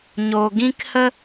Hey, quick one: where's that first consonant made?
palate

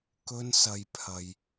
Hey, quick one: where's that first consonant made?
velum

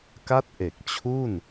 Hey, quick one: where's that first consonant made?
velum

